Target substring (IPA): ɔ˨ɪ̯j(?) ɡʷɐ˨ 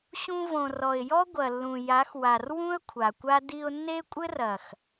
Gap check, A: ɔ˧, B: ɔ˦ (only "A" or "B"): B